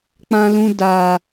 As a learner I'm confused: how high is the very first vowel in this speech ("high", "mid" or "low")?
low